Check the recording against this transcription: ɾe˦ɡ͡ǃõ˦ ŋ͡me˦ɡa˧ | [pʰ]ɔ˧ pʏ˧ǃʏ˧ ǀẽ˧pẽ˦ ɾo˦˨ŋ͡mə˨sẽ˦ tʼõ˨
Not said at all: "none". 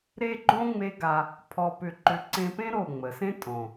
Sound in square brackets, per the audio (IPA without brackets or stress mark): pʰ